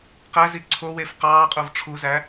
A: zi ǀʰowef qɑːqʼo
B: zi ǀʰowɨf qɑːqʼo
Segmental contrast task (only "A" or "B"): A